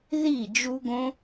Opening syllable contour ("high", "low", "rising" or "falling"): falling